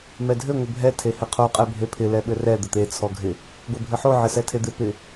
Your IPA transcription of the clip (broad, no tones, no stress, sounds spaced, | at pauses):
m ɛ dʱ ɘ ŋʷ ɪ bʱ ɛ tʰ e h ɪ qʰ o qʼ ɛ bʱ e pʰ ɪ l ɛ ɓ ɘ r ɛ d̪ ɘ t̪ e t͡sʰ ɔ ɡʱ ɪ | ɡʷ e bʱ ɘ ħ o ʕ ɪ s ɛ tʰ e d̪ ɪ p ɪ